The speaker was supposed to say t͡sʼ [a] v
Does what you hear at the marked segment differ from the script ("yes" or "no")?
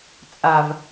no